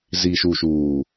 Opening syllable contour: low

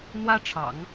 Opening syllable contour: high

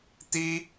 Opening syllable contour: high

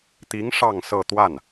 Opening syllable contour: rising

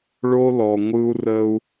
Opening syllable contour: high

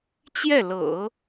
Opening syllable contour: falling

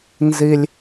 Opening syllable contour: high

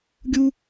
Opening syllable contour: high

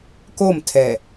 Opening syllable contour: falling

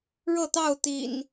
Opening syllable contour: falling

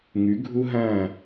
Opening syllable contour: rising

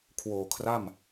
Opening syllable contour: low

